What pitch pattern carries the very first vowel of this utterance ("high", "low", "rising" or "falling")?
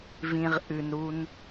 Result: low